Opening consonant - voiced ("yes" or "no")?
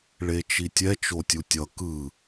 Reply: yes